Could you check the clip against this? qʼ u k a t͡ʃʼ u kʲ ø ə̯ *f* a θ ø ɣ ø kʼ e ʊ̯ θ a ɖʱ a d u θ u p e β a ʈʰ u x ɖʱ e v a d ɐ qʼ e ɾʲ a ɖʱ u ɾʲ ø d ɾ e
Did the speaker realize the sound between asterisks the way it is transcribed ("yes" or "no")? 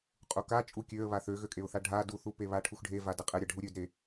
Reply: no